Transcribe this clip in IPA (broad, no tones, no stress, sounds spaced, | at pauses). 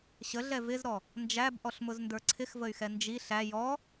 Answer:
ɕ ə ɮ ɛ v ɪ z ɾ ɔ | n d͡ʒ æ b ʔ ɔ ɬ m ʊ z n d ə˞ ǀʰ ɪ x v ə y̯ x ɛ n d͡ʒ i ɬ æ j ɔ